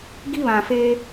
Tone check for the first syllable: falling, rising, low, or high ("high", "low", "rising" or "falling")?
high